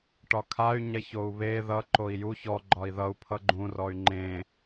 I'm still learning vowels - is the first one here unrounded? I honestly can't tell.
no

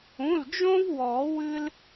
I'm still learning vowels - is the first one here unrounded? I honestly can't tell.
no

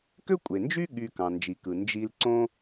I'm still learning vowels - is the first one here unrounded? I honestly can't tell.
no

